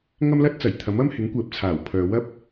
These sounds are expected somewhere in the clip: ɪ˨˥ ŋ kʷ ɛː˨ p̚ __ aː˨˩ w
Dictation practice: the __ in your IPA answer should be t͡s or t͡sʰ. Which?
t͡sʰ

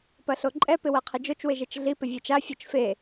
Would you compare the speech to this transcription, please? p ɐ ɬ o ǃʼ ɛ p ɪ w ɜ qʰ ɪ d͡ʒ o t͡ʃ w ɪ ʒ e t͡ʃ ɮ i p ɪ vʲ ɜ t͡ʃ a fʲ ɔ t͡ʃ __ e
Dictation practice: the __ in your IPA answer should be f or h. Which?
f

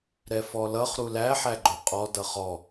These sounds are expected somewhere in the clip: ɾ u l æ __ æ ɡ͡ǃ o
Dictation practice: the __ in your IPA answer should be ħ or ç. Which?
ħ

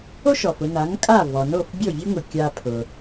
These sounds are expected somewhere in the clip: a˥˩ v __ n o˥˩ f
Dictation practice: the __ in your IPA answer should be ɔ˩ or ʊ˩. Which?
ɔ˩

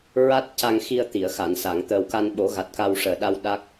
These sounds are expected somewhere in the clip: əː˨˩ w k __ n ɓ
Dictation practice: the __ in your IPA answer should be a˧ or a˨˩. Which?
a˧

